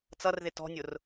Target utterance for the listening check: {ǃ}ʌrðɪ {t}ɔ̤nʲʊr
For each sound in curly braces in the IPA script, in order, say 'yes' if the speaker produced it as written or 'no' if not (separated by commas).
no, yes